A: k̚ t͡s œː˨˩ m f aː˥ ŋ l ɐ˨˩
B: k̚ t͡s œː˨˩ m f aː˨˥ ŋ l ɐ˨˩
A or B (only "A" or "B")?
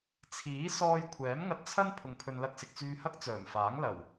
B